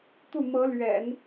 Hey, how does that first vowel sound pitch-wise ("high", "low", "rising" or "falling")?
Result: falling